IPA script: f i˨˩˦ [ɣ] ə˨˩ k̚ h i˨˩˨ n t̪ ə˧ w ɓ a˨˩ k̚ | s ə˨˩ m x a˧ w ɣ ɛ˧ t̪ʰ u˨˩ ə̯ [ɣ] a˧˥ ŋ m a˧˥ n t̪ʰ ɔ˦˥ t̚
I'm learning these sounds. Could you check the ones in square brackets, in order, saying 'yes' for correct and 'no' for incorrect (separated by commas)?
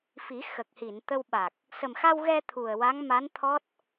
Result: no, no